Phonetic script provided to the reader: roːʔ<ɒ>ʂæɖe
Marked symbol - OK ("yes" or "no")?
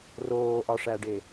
yes